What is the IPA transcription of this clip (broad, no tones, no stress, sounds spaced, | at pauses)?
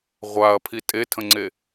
ʁʷ a ɐ̯ pʰ i tʼ e tʰ ə̃ ŋ͡ǀ e